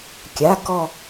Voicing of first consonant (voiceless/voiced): voiceless